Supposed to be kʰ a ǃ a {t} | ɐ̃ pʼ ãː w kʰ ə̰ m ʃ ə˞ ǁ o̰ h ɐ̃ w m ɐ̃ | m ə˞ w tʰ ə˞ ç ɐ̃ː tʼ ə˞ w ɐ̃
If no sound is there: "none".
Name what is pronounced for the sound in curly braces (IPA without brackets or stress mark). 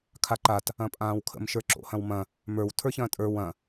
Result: t